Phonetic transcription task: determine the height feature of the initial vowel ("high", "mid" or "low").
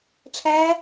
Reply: low